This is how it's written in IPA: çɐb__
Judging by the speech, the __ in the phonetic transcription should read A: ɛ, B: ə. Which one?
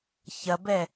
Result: A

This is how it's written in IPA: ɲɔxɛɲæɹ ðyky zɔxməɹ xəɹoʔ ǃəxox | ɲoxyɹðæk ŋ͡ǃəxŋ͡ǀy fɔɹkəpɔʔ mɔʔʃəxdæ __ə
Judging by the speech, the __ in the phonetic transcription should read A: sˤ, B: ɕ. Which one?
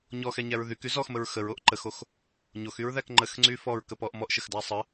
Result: A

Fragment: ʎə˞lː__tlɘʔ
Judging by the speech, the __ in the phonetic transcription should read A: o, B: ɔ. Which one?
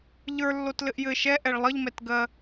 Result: A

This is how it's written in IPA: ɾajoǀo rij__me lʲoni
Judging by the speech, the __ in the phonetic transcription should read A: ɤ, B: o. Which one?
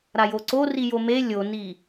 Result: B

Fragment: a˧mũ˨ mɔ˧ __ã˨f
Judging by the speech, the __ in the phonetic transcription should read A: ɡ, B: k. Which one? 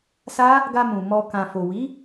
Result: B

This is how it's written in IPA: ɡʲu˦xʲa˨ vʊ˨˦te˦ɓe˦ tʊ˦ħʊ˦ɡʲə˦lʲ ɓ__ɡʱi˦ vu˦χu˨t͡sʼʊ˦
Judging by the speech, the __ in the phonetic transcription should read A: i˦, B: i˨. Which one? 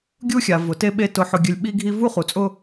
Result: A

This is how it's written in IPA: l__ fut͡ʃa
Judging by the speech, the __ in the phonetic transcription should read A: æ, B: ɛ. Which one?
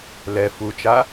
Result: B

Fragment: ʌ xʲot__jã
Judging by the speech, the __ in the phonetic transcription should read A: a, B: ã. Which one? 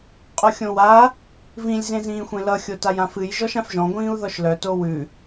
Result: A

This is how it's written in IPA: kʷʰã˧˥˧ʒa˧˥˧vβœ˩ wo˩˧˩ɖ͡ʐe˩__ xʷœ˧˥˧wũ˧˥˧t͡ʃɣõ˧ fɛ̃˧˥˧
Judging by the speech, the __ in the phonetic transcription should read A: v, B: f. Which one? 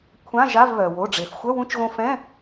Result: B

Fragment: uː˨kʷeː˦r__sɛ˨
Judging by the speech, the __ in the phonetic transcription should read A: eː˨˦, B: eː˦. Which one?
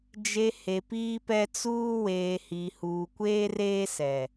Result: B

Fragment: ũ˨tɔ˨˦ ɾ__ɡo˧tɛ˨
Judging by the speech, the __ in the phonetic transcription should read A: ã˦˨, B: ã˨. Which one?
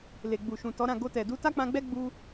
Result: A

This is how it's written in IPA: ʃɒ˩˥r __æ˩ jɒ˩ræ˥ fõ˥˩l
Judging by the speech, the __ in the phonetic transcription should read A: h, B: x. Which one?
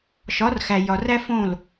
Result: B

